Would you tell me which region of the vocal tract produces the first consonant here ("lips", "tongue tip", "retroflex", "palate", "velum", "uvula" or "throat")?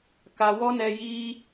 velum